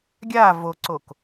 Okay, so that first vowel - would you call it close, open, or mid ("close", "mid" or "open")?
open